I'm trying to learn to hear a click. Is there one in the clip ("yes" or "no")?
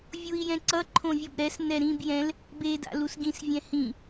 yes